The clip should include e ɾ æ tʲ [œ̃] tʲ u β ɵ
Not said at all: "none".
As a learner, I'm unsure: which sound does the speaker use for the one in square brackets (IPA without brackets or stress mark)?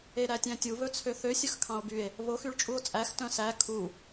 æ̃